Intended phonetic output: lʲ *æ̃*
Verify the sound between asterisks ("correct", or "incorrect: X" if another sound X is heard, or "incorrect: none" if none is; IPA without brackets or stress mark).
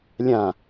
incorrect: ã